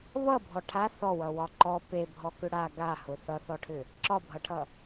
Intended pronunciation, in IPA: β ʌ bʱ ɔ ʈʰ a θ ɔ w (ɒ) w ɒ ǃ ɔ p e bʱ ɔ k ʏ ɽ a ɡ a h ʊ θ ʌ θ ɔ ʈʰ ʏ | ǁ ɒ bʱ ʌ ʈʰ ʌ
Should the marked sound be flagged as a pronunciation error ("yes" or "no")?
yes